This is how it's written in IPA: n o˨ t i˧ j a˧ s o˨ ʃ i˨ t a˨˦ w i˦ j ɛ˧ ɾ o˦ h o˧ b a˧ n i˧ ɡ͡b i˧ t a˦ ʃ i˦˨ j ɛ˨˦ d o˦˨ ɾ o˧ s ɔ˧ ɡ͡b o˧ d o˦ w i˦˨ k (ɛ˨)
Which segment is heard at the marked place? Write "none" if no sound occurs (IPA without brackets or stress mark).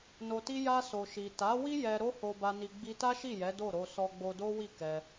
ɛ˧